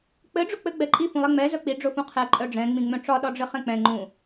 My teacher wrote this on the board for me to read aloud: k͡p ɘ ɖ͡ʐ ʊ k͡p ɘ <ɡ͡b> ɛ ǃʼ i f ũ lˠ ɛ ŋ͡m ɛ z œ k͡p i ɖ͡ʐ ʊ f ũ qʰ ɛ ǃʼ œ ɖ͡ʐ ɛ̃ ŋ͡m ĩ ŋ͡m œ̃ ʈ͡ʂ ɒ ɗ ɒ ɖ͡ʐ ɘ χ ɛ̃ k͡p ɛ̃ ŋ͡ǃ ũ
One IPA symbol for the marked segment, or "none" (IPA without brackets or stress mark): ɡ͡b